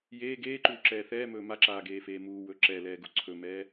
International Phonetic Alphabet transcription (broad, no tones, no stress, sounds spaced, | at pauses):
j eː ɡ eː ǃ uː ǁ ɛː θ ɛː m ɵː m a ǁ aː ɡ eː f eː m uː w ɵ ǁ ɛ l ɛː ɡ u ǀʰ ɵ m ɛː